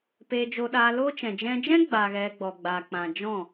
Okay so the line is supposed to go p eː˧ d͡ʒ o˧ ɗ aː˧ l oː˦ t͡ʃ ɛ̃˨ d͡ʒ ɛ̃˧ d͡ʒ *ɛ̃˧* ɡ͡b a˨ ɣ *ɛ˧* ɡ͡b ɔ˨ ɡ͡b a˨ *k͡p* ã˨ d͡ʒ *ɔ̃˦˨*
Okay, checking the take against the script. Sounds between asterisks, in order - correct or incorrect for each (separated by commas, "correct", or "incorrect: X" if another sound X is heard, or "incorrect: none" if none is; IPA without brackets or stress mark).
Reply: incorrect: ɛ̃˦, correct, correct, correct